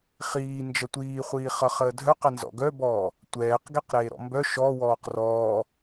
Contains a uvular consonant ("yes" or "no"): yes